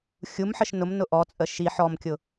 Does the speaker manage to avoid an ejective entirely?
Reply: no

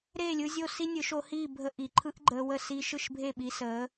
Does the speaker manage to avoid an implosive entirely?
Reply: no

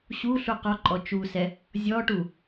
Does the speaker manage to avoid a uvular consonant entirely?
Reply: no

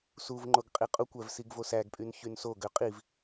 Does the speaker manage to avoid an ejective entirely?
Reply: no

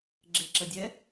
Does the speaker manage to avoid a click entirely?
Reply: no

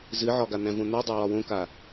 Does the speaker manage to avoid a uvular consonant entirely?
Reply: yes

